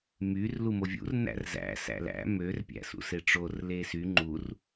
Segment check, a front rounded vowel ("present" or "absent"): present